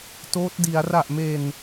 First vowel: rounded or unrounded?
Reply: rounded